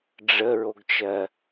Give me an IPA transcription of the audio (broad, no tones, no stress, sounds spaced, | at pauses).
ɖ͡ʐ ə ɹ o ɡ t͡ʃ ɜ